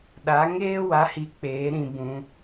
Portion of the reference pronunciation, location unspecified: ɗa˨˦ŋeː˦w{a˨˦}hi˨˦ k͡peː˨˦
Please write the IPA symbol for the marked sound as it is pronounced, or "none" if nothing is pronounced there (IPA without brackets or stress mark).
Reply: a˨˦